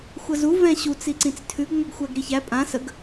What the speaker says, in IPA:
xʷ ɐ z u v ɛ̃ ɕ u t͡s i ǀ ĩ t͡s tʰ ʉ ɡ ŋʷ a ɡ xʷ æ ɡ ɾ i ç æ pʼ ã s ə ɡ

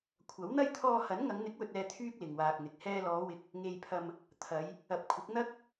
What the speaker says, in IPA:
kʷʰ ɐ˨˥ w n̪ ɐ˥ j t̪ʰ ɔː˧ h ɐ˨˥ n ŋ ɐ˨˧ ŋ n̪ ɪ˨˥ k̚ w ɵ˨ t̚ ɛː˨ t̪ʰ yː˥ k̚ l ɪ˨ ŋ w aː˧ k̚ n̪ ɪ˨ k̚ h ɛː˧ l ɔː˨˧ w ɪ˨ k̚ | ŋ e˨ j pʰ ɐ˨ m | t̪ʰ ɐ˨˧ j | ɐ˨ p̚ kʷʰ ɪ˨˥ k̚ n̪ ɐ˥ k̚

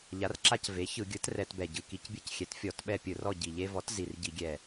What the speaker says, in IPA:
ʎ a˩˥ r ǁ a˦ c v e˩˥ ç ɯ˧˩˧ ɡʲ ɯ˩˥ t r ɛ˧˩˧ t b ɛ˨˩ ɟ ɯ˨˩ k i˧˩˧ c bʲ ɯ˦˨ c xʲ ɛ˩˥ t fʲ ɔ˧˩˧ t ɓ ɛ˦˨ pʲ ɯ˧˩˧ r ɔ˦˨ ɟ i˨˩ ʎ e˦ v ɔ˩˥ t z i˨˩ r ɟ i˧˩˧ ɡʲ ɛ˨˩

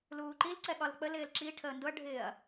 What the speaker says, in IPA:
l uː ǃ i l ǀ ɛ ɠ ɒ l k͡p ə l ɪː l ǁ i ʈʰ əː n d ʊ ɐ̯ ɖʱ ɪː ɐ̯

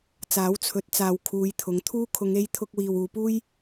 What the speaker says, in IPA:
t͡s aː˨˥ w t͡sʰ ɵ˨˥ t̚ t͡s aː˨ w kʰ uː˨˧ j t̪ʰ ʊ˨˥ ŋ t̪ʰ uː˥ kʰ ʊ˨˧ ŋ e˧ j t̪ʰ ʊ˧ k̚ w iː˨ w uː˨˧ p uː˥ j

